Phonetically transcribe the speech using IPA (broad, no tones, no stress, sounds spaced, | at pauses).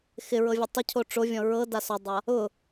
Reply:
x ɪ ɹ ɤ vʲ ɔ tˤ ɪ cʰ o ʈ͡ʂ o vʲ ɔ̃ ɹ ɤ d a s ɔ dˤ a | ʊ